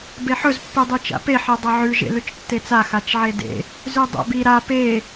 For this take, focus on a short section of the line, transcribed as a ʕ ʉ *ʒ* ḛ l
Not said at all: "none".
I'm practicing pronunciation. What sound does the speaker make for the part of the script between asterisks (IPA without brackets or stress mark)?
ʒ